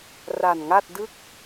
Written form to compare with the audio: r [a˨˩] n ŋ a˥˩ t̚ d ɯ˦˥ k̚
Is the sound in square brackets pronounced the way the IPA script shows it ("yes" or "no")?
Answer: yes